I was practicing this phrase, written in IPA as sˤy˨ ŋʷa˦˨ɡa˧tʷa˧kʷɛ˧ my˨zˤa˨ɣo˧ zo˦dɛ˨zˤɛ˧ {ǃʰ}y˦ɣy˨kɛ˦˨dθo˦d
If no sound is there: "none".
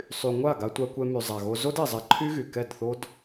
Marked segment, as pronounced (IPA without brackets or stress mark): ǃʰ